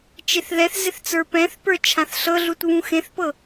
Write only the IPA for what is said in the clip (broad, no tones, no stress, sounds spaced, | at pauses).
t͡ʃ e θ ð ɛ θ z ɪ θ t͡s ə˞ p ɛ̃ θ p ə˞ t͡ʃʰ ã θ ɬ ɤ ɮ u t β ũ x ẽ θ p ɤ